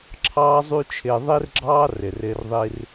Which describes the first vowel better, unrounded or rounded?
unrounded